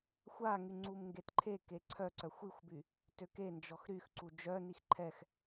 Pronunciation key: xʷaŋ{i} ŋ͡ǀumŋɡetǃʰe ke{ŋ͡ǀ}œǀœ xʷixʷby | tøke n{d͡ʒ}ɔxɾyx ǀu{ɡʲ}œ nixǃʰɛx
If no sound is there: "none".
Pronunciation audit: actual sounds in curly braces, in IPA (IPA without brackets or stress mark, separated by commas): y, ǀʰ, d͡ʒ, d͡ʒ